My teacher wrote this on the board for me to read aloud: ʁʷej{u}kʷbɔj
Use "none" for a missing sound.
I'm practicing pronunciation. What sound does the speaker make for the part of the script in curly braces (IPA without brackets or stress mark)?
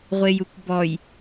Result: u